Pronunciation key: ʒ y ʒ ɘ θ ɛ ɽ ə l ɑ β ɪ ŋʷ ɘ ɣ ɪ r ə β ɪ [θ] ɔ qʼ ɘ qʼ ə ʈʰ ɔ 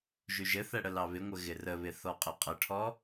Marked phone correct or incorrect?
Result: correct